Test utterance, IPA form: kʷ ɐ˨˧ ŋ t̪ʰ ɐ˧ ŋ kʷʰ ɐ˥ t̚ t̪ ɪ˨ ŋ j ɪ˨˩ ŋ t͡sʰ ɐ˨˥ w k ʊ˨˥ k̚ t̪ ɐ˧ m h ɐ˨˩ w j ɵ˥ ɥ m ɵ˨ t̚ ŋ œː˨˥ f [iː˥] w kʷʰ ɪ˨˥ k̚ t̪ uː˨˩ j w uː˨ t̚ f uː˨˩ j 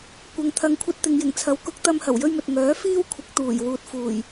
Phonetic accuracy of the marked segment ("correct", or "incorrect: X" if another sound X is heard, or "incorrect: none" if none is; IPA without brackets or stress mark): correct